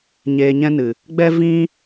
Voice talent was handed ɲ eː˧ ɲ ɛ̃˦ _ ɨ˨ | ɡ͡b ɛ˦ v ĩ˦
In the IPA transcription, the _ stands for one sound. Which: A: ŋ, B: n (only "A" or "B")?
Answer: B